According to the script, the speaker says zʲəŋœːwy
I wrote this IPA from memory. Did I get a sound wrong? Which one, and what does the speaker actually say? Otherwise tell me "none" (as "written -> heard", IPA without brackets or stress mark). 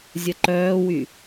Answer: ŋ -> ǃ